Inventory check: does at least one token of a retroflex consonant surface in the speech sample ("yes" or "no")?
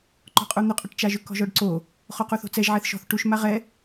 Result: yes